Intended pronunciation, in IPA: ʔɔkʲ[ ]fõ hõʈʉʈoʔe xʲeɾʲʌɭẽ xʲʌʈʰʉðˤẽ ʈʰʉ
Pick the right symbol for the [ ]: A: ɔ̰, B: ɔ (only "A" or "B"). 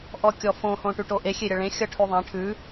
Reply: B